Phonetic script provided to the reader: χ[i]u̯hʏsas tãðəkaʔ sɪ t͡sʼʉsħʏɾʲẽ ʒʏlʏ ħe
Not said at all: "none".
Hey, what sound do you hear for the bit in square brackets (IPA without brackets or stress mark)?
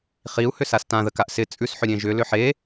i